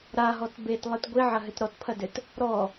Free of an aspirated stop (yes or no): no